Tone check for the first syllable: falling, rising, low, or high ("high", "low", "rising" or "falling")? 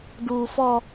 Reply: high